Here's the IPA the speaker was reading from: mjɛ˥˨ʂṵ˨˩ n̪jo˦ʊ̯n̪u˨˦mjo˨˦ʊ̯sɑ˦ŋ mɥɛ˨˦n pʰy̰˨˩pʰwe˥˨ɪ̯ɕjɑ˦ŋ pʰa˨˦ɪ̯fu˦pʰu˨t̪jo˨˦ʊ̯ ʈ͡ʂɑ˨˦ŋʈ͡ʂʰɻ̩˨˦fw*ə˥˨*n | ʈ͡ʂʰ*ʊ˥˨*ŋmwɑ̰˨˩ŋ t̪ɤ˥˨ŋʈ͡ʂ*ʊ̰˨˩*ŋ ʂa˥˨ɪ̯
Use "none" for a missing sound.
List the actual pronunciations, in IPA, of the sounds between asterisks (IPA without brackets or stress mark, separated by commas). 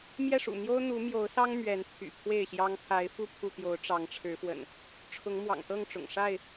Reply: ə̰˨˩, ʊ˨˦, ʊ̰˨˩